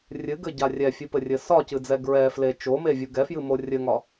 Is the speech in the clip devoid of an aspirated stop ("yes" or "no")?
yes